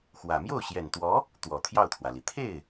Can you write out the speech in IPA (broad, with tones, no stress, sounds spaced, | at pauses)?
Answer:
x w ä˨˩ m j o˥˩ ʊ̯ ɕ j ɛ˨˩ n t̪ w ɔ˧˥ | t̪ w ɔ˨˩ t̪ʰ j ɑ˥˩ ʊ̯ t̪ʰ w ä˩ l i˩ t̪ʰ e˥˩ ɪ̯